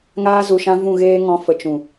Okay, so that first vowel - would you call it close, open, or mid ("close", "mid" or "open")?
open